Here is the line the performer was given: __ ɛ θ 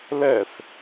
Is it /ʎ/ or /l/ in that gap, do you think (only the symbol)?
l